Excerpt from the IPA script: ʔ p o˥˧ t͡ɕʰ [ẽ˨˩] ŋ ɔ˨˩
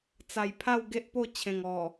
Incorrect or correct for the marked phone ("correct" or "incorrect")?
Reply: correct